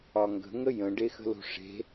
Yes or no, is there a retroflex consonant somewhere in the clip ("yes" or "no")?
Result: yes